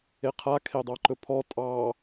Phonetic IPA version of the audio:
e qʰ a kʰ e dˤ ɑ ǃ ɵ pʰ ɔ tʼ ɑ

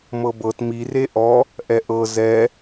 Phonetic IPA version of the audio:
m ɤ b ɤ t m i r e ʔ ɔ | ʔ ɛ ʔ ɤ z ɛ

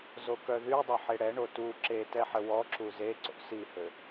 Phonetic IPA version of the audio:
z o k œ ð y dˤ o ħ e ɽ ɛ ɳ o t u ǁ e t ɛ ħ ə w ɔ ǁ u z e ǀ o̰ s i h ø

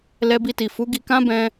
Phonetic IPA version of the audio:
l ɛ˧ b i˧ t i˨ f u˨˦ ɡ i˧ k ã˦ b ɛ̃˧

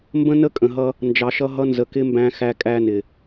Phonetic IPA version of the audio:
m b ə̃˦ n ə˦ kʼ ə̃˨ ɦ ʌ˧ | n d͡ʒ ɑ˨ ʃ ʌ˧ ɦ ʌ˧ n z ə˨ k ɪ˦ m b æ̃˧ x æ˧ kʼ æ˧ n ɪ˨

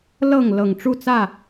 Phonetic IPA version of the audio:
l ɤ˥˨ ŋ l ɤ˨˩ ŋ ʈ͡ʂ u˥˨ t͡s ä˥˨

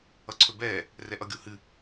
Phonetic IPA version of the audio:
ʌ ǀʰ ɵ b ɛː | r ɛ ʔ ʌ ɡʲ o h ɨ

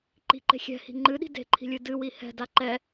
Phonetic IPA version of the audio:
ǃ i̤ ǃ e̤ xʲ ɛ̤ h i̤ ŋ͡ǃ ɨ ɗ i̤ d e̤ ǃʰ i̤ lʲ ɨ d ɨ w i h ɛ̤ d a ǃ ɛ

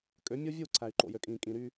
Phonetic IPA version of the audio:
kʼ ø˨˦ mʲ o˦ vʲ u˦˨ ǀʰ æ˨ y̯ ǃ o̰˨ j ø˨ kʼ ĩː˨ kʼ ĩ˨ ɾ y˦

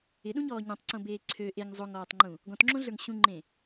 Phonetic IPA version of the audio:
ɪ ɗ ũ ɲ ɔː ɲ ɔ̃ tˤ ǀ õ b eː ǀʰ ø ʔ e ŋ zˤ o ŋ ɔː tˤ ŋ͡ǃ ũ | ɡ ɔ̃ t ŋ͡ǁ õ ɮ ə˞ ŋ ɕ ũ ŋ͡ǃ ẽ

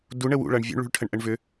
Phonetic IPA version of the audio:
d u ɳ ə w ṵ ɭ ʌ ɳ vʲ o̰ ɳ ɭ ṳ ɭ ʈʰ ə ɳ ʔ ə ɳ v ʏ

